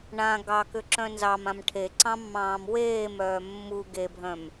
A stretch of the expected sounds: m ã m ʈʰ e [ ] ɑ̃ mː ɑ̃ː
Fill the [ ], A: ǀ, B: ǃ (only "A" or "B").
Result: A